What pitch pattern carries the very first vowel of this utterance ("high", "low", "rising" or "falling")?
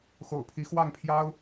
low